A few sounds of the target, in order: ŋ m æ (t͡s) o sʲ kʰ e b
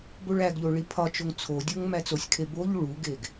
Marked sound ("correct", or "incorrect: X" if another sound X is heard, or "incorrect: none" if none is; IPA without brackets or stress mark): correct